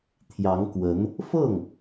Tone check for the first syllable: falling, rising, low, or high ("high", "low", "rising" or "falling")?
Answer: rising